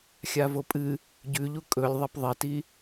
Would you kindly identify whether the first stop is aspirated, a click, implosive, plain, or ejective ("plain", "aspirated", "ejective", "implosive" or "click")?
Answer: ejective